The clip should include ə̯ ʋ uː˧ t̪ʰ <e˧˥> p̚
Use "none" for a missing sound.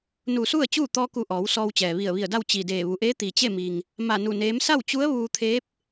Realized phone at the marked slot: eː˧˥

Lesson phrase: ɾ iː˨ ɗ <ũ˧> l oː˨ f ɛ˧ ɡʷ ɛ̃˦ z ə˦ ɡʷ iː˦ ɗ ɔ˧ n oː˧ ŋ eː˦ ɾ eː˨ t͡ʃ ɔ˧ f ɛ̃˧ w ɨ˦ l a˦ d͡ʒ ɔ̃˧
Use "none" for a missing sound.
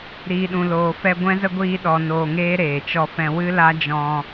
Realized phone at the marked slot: ũ˨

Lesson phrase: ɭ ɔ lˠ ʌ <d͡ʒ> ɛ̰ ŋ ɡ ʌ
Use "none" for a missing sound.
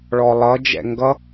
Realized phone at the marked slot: d͡ʒ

